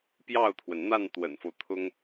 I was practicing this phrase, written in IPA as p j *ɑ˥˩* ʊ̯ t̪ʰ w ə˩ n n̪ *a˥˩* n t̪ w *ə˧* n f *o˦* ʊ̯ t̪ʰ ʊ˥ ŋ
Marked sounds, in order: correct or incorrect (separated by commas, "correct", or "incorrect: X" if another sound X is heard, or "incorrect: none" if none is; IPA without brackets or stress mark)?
correct, correct, incorrect: ə̰˨˩, correct